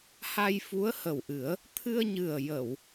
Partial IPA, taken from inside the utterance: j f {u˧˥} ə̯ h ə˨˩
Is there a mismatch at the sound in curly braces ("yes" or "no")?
no